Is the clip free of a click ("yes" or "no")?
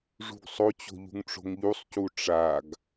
yes